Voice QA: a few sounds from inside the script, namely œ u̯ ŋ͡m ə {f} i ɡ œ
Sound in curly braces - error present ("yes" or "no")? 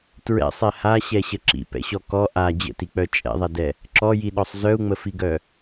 no